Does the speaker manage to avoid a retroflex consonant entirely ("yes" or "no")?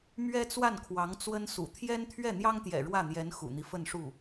no